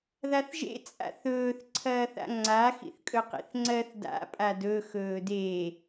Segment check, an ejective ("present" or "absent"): present